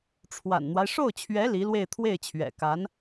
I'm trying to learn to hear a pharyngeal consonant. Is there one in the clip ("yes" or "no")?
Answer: no